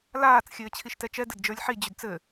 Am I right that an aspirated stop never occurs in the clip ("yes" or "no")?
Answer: no